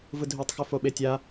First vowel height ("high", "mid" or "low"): high